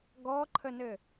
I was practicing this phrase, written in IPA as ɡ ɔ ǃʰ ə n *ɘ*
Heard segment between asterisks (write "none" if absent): ɘ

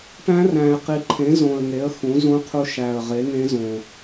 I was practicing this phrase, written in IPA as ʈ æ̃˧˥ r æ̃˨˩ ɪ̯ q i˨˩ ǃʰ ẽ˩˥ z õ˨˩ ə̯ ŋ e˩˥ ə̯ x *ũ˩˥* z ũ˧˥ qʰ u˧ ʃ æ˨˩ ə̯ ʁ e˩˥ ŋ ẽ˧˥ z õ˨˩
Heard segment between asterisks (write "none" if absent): ũ˩˥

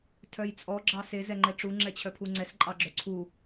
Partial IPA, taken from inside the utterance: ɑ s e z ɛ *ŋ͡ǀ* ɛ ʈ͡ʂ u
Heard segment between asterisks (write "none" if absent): ŋ͡ǃ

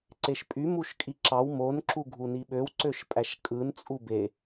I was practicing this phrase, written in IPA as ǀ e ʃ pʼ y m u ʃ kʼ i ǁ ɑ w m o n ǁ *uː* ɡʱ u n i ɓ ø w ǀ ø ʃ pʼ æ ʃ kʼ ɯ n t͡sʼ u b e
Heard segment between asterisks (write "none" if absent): u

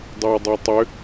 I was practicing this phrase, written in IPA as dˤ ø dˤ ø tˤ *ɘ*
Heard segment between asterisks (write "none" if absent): ø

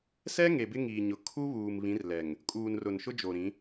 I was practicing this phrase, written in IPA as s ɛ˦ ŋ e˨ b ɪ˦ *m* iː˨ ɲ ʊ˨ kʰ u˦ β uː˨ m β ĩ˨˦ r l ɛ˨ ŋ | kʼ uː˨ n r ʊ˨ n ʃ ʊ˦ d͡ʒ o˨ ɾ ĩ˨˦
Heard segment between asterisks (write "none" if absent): ŋ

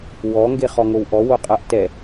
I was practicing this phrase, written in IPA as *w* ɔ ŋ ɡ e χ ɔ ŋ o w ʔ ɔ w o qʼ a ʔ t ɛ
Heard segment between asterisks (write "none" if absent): w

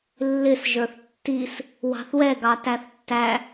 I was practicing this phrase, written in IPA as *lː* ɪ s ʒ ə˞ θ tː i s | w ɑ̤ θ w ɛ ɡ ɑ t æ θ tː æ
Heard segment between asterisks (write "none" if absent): lː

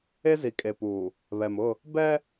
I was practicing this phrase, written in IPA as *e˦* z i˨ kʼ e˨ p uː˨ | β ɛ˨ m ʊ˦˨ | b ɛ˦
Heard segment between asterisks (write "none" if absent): e˦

